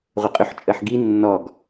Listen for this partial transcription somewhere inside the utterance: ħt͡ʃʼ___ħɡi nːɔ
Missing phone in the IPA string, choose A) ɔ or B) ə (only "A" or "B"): B